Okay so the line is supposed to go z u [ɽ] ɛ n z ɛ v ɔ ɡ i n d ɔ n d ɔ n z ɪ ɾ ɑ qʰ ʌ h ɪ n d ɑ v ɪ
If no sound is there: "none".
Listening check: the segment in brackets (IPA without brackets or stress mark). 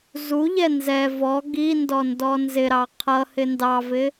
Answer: ʎ